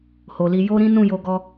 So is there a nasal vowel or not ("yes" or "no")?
yes